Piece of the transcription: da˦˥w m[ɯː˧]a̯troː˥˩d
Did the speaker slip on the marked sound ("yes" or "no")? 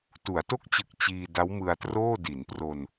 yes